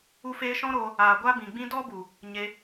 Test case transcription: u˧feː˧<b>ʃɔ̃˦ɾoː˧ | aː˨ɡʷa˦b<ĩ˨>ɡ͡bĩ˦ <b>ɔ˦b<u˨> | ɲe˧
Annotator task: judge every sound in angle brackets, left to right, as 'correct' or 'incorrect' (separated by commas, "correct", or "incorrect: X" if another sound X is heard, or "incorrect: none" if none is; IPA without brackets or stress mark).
incorrect: none, correct, incorrect: d, correct